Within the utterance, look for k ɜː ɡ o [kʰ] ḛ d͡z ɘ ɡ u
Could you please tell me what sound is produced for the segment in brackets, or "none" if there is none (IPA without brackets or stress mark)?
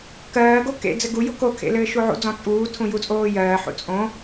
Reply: k